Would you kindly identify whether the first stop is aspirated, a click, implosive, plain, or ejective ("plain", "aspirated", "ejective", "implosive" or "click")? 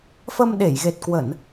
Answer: implosive